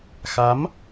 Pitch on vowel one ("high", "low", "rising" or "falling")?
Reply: rising